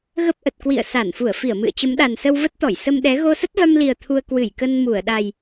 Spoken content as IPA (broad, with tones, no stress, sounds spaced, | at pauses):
ɣ ə˦˥ p̚ ʔ ə˨˩ t̚ k w ḭ˧˨ ə̯ s a˧˩ n f u˧˩ ə̯ f i˧˩ ə̯ m ɨ̰˧˨ ə̯ t͡ɕ ə˨˦ m ɗ a˨˩ n s ə˧ w v ə˦˥ t̚ t̪ ɔ˧˩ j s ə˧ m ɗ ɛ˨˦ ɣ o˧ s ə˦˥ t̚ v a˧ m l i˨˩ ə̯ t̪ʰ u˧ ə̯ k w ɨ˧˩ j k ə˧ n m u˧˩ ə̯ ɗ a˨˩ j